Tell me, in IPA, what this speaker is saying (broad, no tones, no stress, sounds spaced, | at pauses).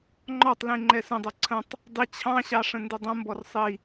ŋ͡ǃ ɔ tˤ l ĩ ŋ͡ǃ ɛ s ə̃ dˤ ɛ ǀʰ ə̃ tˤ | dˤ i t͡ɕʰ ɑ̃ ɕ ɑ ʂ ə̃ n d ɪ dˤ ə̃ m b ɔ r sˤ i